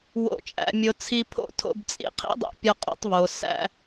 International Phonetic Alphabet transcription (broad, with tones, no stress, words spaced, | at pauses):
wo̰˨t͡ʃʼæ̰˨mʲo˨ t͡sʰi˧ pʰo̰˦˨tʰo̰˧bt͡sʼḭ˦ qʰḭ˦dˤo̰˧pʲɒ˧ qʼo̰˧tˤβo˨ sæ̰˧